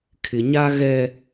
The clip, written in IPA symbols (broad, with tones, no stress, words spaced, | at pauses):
kʰɪ˨ɲa˦ ɣɛ˦